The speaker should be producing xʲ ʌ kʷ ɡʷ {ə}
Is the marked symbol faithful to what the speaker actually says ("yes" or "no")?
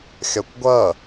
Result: no